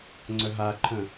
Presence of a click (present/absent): present